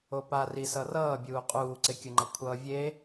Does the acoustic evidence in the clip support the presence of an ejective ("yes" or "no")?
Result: yes